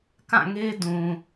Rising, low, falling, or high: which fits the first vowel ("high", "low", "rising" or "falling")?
falling